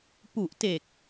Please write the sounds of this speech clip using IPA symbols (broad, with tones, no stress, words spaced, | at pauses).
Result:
pu˨˩ʔte˨˩k̚